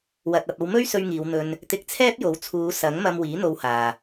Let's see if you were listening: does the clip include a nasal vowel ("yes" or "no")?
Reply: no